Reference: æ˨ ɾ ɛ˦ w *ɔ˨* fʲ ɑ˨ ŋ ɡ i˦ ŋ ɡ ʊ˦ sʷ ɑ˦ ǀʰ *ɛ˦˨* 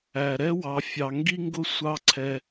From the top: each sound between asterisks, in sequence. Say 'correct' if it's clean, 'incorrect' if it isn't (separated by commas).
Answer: incorrect, incorrect